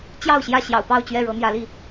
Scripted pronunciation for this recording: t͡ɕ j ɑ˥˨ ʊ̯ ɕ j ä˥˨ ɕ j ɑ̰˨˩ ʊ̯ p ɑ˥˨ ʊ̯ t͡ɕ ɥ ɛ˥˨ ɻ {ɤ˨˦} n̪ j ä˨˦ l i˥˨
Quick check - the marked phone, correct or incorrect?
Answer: correct